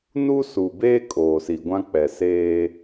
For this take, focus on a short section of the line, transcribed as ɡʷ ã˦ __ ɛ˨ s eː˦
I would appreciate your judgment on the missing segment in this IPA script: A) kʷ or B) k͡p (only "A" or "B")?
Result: B